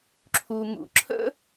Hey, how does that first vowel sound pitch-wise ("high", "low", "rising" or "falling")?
low